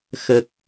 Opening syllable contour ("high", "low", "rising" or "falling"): low